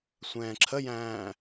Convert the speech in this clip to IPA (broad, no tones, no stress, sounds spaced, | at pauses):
sʷ ɛ̃ː ǁʰ ə j æ̃ː